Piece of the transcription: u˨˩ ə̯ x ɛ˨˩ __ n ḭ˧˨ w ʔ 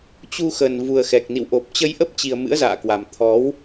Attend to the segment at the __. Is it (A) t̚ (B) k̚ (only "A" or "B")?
B